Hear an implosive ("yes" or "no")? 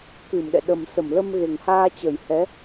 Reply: yes